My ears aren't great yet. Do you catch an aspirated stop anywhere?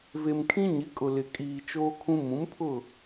yes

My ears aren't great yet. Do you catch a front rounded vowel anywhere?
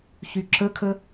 yes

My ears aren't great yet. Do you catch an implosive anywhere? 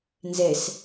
no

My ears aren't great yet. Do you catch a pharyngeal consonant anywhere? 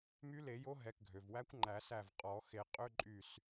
no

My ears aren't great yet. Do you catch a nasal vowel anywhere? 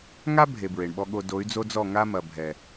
no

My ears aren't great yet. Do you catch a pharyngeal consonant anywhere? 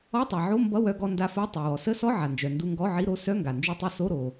yes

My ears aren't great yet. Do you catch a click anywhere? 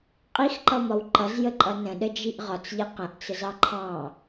yes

